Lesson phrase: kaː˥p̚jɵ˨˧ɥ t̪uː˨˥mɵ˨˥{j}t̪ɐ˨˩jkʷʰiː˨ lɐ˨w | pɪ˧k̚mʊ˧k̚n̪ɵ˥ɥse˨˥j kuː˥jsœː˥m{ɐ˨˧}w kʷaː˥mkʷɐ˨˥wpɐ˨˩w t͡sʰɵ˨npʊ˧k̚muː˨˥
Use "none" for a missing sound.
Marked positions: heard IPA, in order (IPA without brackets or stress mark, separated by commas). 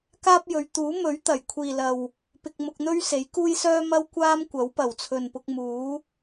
ɥ, ɐ˥